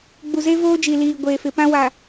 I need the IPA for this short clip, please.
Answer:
ɡ͡b u˨ z e˦ v oː˦ d͡ʒ i˨ l iː˨ ɡʷ eː˨ f ɪ˨ p ã˦ w a˨

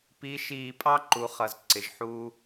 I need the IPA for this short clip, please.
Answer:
p i˧˥ ʃ iː˧ pʼ ɑ˥ ǃ u˩˧ χ ʌ˩ z ǀ ɪ˩˧ ʒ ħ uː˥

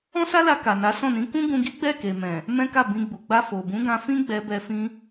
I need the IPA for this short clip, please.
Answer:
ɔ̃˦ s a˦ l a˧ k a˨ n a˨˦ s ɔ̃˦˨ n ĩ˨˦ k ũ˦ ɡ ũ˧ ɡ i˦ ɡ͡b ɛ˦˨ k e˨ m ɛ̃˨ | m ɛ̃˦ k a˦˨ b ĩ˧ ɡ͡b u˨ ɡ͡b a˧ f o˨ b ũ˨˦ ɡ ã˧ f ĩ˦ ɡ͡b ɛ˧ b ɛ˧ f ĩ˧

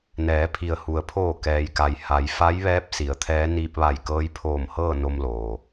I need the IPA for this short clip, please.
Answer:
n ɛː˩˧ pʰ i˩ ə̯ h u˩ ə̯ pʰ oː˧˩ k ɛː˩ j k a˩ j h a˩˧ j f a˧˥ j ʋ ɛː˧˥ p̚ s i˩˧ ə̯ t̪ʰ ɛː˧˥ n iː˧ p̚ ʋ a˧˩ j k ɤː˧˥ j pʰ oː˧˩ m h ɤː˥˨ n o˧ m l oː˩

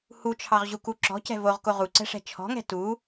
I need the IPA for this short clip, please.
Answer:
h u t͡ʃʰ ɑ ʁ ʑ u k u ǁ ɔ̤ c ɛ̤ v o ʁ k o ʁ u ǀ ɛ̤ ʂ ɛ̤ t͡ʃʰ ɔ̤ ŋ ɛ̤ t u

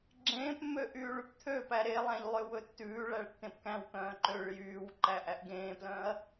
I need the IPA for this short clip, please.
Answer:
ɡ͡ǁ ẽː p mː ø ʔ yː ɭ y p t̪ʰ ø p æ ɾ e lˠ æ̃ ʎ lˠ ø w ɵ tː ʉː ɭ æ ɭ tː ẽ p k æ̃ w k œ̃ː ǃ ø ɭ j yː w ǃ æ ʔ æ ʔ ɡ ẽː p l œ̃ː ɐ̯

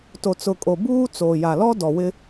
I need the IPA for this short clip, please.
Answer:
t o˨ t͡s ʊ˨ kʼ o˨ b uː˦ t͡s oː˨ j a˨ l ɔ˦ d ɔ˨ w ɪ˦

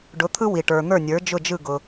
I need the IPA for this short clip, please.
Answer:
ɖ ʊ˩˥ t̪ʰ ɯ˥ w i˩ ʈ ə˞˩ n̪ ə˞˥˩ nʲ ə˞˩˥ d͡ʒ ʊ˥˩ d͡ʒ ɯ˥˩ ɡ ʊ˩

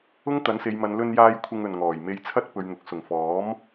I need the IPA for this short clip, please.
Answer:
ʊ˥ ŋ t̪ ɐ˨˥ n s e˨˧ j m ɐ˨˧ n l ɵ˧ n j aː˧ j kʷʰ ɪ˨ ŋ ɵ˨˩ n ŋ ɔː˨˩ j m e˧ j t͡sʰ ɐ˥ t̚ p ɵ˨˧ ɥ n̪ ʊ˨˥ k̚ s ʊ˨˩ ŋ f ɔː˨˥ m

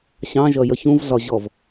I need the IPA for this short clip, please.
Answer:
ɕ ɑ̃ ʒ ʌ j ʌ ç ũ v ɮ ɒ ʑ ɔ v

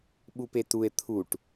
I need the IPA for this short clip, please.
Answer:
ɓ u p e t u e̯ t̪ʰ u ʈ

